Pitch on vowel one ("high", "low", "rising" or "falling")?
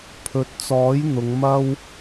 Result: rising